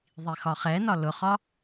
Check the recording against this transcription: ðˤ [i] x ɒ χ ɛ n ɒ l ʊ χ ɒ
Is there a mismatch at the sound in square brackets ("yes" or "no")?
no